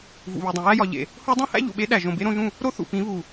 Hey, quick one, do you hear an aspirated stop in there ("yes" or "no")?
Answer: no